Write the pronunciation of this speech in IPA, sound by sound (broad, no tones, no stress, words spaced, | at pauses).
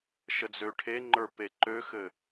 ʃəd͡zøʈʰeŋ͡ǃə˞ peǃøxɘ